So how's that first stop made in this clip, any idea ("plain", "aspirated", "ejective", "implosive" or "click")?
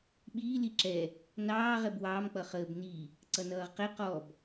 implosive